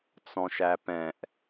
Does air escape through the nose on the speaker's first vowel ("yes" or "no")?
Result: yes